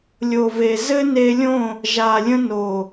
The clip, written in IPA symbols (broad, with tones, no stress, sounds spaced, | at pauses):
lʲ o˨ v e˨ z ɘ˦ n e˧ lʲ õ˦˨ | ʒ a˨ lʲ ə̃˧ n o˨